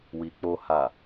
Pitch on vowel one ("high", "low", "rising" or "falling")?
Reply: low